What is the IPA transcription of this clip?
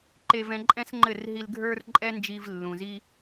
ǃe˧v ɛ̃˧ǃʼɛ̃˦sŋ͡ǃɘ˦˨r ɦi˧lɡʱə˞˦rǃʼɛ˦nd͡ʒi˧v lːũ˨zi˦

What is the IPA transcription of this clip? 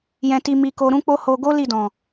jɛ̃˧ti˧ mi˧ko˧ ɾũ˦k͡po˦ho˧ ɡo˦ li˦˨dɔ̃˨

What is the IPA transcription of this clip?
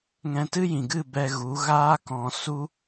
ŋɛ̃˧tɨ˦jĩ˨ɡɨ˦˨ bɛ˧ɣu˨˦ ɣaː˦kɔ̃˧ su˦

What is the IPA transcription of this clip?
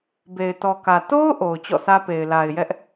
be˨ɪ̯tɔ˨kä˨ to˦ʊ̯ ʔo˨ʊ̯t͡ɕɔ̰˦˨sä˦pe˨ɪ̯ la˨ɪ̯jɛ˦ʔ

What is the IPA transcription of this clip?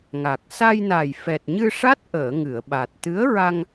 ŋa˨˩k̚ sa˧jna˨˩j fɛ˨˩t̚ɲɨ˧ʂa˦˥t̚ʔəː˨˩˨ ŋɨ˨˩˨ə̯ɓa˨˩t̚ t̪ɨ˧˥ə̯ɹa˧ŋ

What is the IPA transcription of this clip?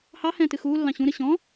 hɑhɛ̃ːtɨ xuːlːɑ̃ ɕũɾɨ ɕɔ̃

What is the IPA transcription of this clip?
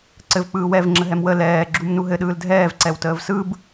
ǀɘv k͡pɯːwɛv ŋ͡ǁəɦɛmwə lɛː ɡ͡ǁumnuɦɘ ɗɯːldʱɛːv ǀɛwtəːvsɯb

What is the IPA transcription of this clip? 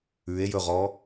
ʉe̯jɵʁɔ

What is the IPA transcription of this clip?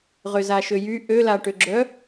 ʁøzaʃøjy ʔølaʈøɡ͡ǁœ

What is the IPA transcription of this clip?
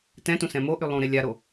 tɛ̃tũ sɛ̃moʔy lˠũɾe lʲaɾo

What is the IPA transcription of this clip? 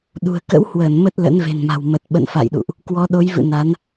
ɗṳ˨˩ə̯ kə̰˧˥whwəː˧˩n mə˦˥t̚lə̰˧˥nve̤˨˩nma̤˨˩w mə˨˩t̚ɓə̰˧˨nfa̰˧˨jɗṵ˧˨ʔ | kwɔ˨˦ɗo˨˦jvɨ̰˧˨ na˨˦n

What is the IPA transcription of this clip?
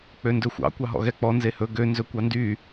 k͡pøndɵxʷɑ̰ kʷɑɦɔ̰ɣɛk͡pɔ nzehɵ ɡø nzɵkʷɑndy

